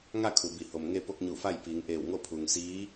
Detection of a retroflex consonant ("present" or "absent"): absent